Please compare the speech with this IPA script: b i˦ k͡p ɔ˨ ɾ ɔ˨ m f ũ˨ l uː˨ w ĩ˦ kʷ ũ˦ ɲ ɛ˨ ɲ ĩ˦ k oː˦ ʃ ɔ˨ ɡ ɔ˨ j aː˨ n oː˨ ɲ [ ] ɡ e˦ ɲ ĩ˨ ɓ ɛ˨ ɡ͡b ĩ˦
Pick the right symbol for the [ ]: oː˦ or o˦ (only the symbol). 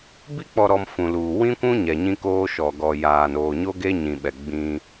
o˦